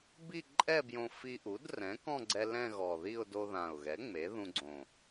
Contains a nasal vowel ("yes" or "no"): yes